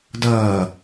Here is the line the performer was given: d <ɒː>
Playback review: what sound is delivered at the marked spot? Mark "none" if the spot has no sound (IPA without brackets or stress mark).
ʌː